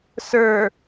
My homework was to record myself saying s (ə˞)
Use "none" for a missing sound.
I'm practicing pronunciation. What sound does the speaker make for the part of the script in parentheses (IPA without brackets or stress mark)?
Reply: ə˞